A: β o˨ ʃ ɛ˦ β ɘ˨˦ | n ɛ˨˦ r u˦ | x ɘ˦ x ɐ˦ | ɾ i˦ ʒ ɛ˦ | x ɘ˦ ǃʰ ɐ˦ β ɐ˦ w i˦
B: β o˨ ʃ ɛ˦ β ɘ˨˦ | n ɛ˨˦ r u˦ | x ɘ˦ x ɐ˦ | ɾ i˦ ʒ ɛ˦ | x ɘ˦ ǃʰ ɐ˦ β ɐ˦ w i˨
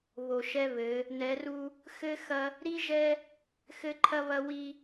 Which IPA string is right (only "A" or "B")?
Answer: A